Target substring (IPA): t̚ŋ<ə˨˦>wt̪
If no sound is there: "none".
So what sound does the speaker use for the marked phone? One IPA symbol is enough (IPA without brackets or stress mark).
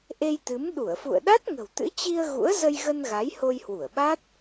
ə̤˨˩